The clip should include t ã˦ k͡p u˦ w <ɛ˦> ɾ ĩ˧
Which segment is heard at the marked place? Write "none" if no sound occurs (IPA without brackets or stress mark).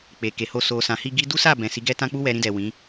ɛ˧